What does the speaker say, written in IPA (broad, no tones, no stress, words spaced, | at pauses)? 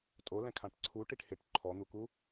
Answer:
tʼolɛ̃kʰãʈ ǀʰuʈiʈ hɪʈ ǃʰɔn̪uku